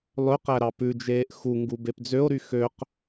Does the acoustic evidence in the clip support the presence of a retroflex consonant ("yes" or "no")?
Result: no